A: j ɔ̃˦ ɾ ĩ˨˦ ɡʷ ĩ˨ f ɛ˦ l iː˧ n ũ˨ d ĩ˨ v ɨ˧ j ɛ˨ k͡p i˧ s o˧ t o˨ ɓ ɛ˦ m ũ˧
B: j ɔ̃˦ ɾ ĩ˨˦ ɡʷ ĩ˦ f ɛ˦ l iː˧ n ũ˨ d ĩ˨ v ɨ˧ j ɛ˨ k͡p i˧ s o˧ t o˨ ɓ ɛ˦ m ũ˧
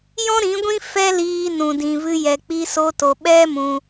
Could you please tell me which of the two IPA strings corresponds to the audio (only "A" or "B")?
B